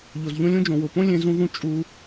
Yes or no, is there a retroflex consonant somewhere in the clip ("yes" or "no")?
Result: no